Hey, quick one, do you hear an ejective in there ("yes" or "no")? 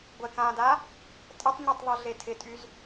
yes